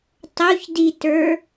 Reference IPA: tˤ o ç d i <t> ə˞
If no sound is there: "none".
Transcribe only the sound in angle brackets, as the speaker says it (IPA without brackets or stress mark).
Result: t